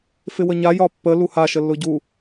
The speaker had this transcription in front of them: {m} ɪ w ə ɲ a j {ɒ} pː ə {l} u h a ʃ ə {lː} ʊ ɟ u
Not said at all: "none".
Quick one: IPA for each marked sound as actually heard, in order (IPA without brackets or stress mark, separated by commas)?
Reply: f, ɒ, l, lː